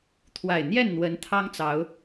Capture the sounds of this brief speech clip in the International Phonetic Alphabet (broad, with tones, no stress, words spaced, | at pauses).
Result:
t̪ʰwa˨˩ɪ̯ n̪jɛ˥˨n n̪wə˨˦n t̪ʰɑ˦ŋt͡sɑ˨˦ʊ̯